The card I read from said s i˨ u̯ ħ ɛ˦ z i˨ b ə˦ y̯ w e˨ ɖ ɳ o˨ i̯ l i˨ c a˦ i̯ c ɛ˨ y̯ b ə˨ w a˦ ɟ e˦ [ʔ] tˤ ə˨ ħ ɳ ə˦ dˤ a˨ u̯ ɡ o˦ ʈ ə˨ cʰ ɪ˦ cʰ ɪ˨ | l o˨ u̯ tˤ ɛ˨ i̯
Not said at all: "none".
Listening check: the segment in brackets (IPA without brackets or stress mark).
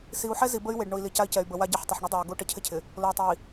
ħ